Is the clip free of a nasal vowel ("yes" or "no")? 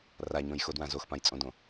no